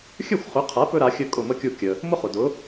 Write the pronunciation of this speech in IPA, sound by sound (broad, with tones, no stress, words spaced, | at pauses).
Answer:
xʲɵ˥˩xʷχʏ˩˥qʰa˩˥ pɵ˥ɾa˩˥xʲɵ˥˩ kʼʊ˥˩mə˥kʲu˥˩ kʲə˩ | mʊ˥χʊ˩ dʊ˩˥